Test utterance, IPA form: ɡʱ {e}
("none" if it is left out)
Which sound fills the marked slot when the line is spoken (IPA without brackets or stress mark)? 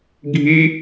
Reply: i